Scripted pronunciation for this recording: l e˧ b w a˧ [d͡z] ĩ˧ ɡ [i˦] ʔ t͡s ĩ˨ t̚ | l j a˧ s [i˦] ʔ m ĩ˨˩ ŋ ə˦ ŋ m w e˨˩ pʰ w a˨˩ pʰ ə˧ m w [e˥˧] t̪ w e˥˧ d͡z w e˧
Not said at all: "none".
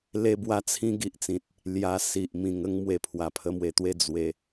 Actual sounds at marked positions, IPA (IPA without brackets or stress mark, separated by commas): t͡sʰ, i˦, i˨, e˨˩